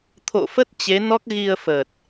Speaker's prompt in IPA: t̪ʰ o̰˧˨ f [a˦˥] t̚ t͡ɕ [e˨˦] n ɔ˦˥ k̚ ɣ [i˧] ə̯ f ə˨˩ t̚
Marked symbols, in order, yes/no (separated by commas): no, yes, yes